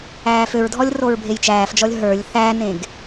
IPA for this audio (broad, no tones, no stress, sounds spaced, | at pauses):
æː f ø ɹ dʱ ɔ lʲ r o ɹ bʱ e j t͡ʃ æː f d͡ʒ ɔ lʲ ɦ ə˞ lʲ θ æ n ẽ ɡ